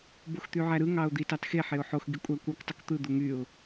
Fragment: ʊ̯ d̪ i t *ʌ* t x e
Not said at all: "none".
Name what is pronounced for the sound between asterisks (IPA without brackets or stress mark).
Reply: ɑ